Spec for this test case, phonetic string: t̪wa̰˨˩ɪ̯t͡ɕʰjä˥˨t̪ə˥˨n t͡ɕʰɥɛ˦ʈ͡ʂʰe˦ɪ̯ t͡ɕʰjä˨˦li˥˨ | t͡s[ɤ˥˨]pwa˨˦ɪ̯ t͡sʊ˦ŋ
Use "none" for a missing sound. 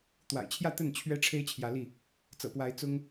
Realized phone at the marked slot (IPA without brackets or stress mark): ɤ̰˨˩